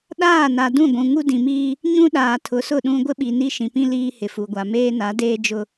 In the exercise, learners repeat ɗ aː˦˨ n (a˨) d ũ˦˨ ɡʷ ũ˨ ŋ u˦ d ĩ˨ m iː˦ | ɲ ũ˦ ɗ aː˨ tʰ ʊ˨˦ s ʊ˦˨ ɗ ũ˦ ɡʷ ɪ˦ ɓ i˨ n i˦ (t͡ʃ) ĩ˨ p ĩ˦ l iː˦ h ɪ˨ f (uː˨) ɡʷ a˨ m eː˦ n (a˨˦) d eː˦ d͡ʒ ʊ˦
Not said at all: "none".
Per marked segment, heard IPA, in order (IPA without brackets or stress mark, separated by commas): a˨, ʃ, u˨, a˨˦